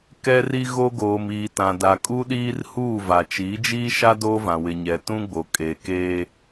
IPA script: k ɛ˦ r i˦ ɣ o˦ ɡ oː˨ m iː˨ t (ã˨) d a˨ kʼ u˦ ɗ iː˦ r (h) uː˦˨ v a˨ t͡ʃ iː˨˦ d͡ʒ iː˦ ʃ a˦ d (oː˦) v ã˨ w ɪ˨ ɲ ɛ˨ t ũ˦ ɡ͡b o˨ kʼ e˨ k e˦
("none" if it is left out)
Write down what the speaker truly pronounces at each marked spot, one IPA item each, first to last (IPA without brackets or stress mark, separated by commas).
ã˨, h, oː˦